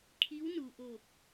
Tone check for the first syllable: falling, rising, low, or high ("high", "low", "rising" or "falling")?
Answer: rising